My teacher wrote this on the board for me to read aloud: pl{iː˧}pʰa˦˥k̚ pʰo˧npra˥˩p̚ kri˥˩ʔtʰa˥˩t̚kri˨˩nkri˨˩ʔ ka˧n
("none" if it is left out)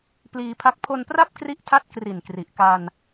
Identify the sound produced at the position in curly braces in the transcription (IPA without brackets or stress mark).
iː˧